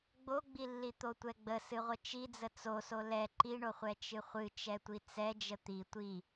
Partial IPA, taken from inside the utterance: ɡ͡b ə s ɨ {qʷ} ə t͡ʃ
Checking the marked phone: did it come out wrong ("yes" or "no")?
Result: yes